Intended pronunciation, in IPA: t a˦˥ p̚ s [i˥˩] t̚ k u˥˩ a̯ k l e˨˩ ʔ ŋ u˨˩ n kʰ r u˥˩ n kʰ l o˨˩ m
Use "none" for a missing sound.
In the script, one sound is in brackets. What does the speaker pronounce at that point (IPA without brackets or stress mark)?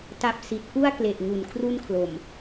i˨˩